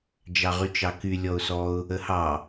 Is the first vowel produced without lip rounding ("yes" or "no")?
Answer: yes